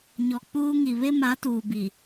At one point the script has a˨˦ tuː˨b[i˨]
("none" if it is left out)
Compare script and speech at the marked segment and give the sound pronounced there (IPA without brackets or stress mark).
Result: i˨